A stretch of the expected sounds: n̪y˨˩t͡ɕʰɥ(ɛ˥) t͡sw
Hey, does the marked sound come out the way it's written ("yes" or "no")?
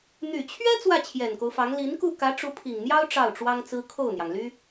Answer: yes